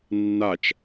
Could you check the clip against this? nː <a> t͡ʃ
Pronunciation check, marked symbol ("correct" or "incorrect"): correct